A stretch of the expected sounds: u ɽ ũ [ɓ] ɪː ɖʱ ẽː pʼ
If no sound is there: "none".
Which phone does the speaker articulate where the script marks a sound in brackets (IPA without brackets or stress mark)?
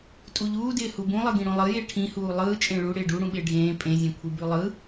ɓ